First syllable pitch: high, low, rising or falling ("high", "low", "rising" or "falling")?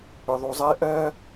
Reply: low